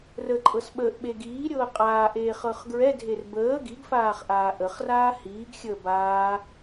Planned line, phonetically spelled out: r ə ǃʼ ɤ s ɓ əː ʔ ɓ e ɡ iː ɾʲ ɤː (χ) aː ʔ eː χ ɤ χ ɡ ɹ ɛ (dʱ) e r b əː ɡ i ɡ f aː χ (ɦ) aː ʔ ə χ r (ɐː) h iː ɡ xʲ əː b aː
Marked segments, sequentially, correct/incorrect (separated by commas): incorrect, correct, incorrect, incorrect